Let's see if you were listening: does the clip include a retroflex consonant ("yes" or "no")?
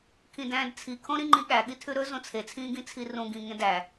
no